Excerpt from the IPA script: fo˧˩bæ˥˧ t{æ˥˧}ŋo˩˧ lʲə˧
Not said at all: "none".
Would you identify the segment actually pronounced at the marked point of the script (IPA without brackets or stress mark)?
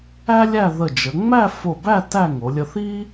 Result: æ˥˧